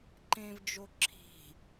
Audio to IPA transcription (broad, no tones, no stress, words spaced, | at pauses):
ǃẽvd͡ʒo ǁʰi̤